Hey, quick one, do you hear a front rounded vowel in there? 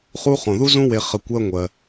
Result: no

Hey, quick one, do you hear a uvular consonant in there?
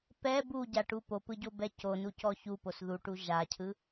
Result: no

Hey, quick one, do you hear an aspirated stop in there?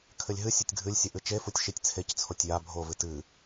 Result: yes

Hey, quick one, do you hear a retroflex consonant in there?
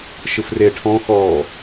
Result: yes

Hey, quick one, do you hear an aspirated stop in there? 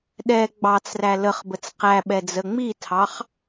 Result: yes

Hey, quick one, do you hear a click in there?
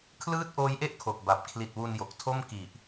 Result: no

